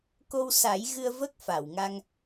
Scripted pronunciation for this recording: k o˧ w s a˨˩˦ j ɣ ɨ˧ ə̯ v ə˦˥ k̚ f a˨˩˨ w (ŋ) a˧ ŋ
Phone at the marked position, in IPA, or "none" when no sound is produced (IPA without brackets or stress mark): ŋ